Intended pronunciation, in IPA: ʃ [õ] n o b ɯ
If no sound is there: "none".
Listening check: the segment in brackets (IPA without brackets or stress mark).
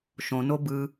õ